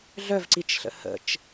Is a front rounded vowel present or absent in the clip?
present